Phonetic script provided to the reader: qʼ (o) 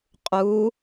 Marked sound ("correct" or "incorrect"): incorrect